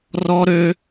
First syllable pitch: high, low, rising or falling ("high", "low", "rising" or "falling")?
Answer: high